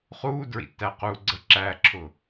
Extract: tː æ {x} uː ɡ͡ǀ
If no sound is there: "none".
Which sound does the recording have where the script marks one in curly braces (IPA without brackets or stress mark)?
q